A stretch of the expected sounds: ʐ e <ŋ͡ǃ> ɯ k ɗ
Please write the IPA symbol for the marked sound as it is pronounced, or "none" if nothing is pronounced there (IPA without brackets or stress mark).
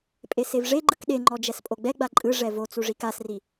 ɡ͡ǃ